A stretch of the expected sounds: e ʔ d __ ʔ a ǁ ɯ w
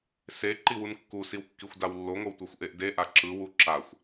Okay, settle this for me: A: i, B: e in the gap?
B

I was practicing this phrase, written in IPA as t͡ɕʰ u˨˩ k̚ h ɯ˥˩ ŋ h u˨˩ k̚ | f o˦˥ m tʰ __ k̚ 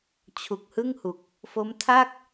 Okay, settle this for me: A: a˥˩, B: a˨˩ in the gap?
A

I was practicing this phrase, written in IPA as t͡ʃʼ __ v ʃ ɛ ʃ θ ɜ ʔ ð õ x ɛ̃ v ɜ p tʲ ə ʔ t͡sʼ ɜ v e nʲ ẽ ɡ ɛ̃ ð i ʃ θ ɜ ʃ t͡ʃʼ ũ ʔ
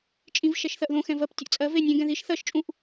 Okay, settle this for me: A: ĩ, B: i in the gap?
A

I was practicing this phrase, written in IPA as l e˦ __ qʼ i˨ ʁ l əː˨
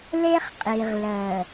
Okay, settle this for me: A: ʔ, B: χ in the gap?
B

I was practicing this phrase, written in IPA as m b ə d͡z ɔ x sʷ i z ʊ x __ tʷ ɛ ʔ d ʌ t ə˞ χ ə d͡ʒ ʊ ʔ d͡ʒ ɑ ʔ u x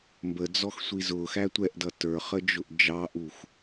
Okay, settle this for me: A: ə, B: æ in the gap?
B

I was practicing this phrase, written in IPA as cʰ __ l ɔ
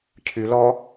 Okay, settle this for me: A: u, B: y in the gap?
B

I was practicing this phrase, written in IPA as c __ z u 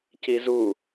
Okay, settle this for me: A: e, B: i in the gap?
B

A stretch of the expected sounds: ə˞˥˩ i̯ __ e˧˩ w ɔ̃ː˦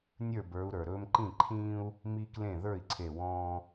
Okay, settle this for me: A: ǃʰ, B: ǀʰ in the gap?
B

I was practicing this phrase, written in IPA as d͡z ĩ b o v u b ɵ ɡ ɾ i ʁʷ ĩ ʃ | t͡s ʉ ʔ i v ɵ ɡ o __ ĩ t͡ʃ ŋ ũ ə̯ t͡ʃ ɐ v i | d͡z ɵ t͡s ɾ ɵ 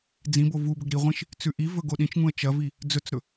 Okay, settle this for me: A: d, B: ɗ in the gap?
B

